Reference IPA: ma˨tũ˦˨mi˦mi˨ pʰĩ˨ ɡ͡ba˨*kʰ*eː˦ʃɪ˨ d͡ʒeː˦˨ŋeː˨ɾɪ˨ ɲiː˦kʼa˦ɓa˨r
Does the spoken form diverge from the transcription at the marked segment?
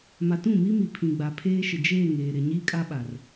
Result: yes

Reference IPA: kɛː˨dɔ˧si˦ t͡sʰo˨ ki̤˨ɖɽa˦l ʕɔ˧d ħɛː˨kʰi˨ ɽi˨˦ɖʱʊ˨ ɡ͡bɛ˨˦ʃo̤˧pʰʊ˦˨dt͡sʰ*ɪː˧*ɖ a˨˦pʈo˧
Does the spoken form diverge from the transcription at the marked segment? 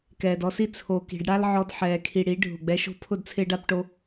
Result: no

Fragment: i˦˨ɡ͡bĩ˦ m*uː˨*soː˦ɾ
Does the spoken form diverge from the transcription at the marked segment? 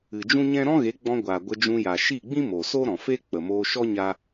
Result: yes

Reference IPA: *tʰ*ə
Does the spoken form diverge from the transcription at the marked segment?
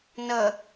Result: yes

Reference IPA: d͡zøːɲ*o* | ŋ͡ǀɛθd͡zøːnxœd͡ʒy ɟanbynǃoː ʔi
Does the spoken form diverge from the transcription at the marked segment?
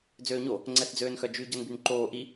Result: no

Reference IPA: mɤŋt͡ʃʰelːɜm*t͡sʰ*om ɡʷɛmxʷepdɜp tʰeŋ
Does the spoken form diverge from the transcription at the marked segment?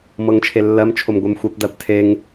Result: yes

